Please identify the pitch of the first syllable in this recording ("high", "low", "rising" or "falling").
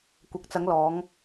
low